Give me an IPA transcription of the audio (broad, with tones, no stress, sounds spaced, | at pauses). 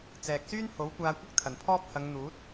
t͡s ɛː˨ k̚ s yː˥ n h o˨˥ w kʷ aː˧ kʷ ɪ˥ k̚ t̪ʰ ɐ˨˩ n pʰ ɔː˥ p̚ h ɐ˨˧ ŋ n̪ uː˨˥ t̚